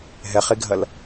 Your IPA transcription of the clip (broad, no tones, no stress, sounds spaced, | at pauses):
ɦ ɛ χ e ɡʱ ɐ l